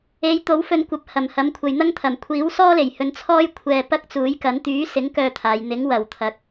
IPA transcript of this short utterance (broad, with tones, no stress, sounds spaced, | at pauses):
e˨˧ j t̪ o˨˥ w f ɵ˧ n kʷ ɐ˨˥ p̚ h ɐ˨˩ m h ɐ˨˥ m kʷʰ ɐ˨ j n̪ ɐ˥ ŋ t̪ʰ ɐ˨˩ m kʷʰ iː˨˥ w s ɔː˥ l e˨˩ j h ɵ˧ n t͡sʰ ɔː˥ j kʷʰ ɛː˧ p ɐ˥ k̚ t͡s uː˨˥ j k ɐ˨˥ n t̪ yː˨˥ s ɪ˨˥ ŋ k œː˥ t̪ʰ aː˨˧ j n̪ ɪ˨˥ ŋ w ɐ˨˩ w t̪ʰ ɐ˨ k̚